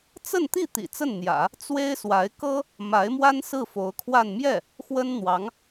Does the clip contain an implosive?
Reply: no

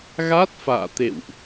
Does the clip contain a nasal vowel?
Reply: no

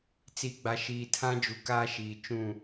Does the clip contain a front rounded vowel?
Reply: no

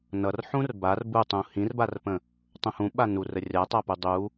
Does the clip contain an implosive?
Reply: yes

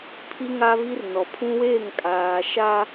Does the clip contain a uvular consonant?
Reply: no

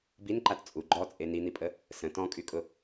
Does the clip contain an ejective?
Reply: yes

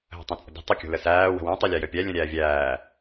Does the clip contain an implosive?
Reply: no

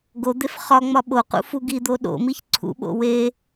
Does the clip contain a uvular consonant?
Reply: yes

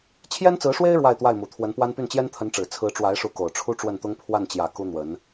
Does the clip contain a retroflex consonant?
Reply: yes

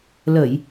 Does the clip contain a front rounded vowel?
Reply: no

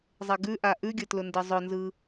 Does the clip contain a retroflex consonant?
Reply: no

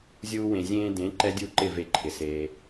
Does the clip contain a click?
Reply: yes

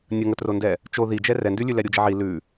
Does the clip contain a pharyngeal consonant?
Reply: yes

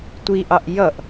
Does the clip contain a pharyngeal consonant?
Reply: no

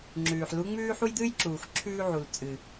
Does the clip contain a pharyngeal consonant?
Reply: yes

